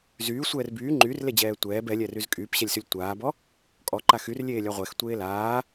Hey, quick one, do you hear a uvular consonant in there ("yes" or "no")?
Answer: yes